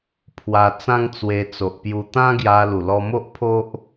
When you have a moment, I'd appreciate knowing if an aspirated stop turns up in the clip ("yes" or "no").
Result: yes